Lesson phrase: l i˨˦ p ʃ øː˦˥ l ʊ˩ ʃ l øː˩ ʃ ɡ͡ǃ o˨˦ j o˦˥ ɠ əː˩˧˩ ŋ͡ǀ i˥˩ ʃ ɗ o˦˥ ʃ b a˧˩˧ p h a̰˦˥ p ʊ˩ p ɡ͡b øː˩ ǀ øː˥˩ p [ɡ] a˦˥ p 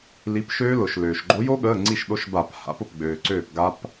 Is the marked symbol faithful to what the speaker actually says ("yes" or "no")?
yes